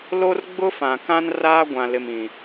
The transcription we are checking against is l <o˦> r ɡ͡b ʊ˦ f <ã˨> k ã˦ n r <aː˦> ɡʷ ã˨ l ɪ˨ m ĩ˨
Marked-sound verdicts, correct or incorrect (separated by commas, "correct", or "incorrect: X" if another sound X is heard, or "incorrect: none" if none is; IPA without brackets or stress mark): correct, correct, correct